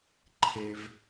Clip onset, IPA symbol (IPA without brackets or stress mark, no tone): ǃʰ